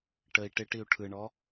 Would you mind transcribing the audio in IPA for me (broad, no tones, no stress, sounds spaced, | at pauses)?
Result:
ʈ ə i̯ ʈ ɪ ʈ i u̯ ʈʰ ɯ ɳ ɔ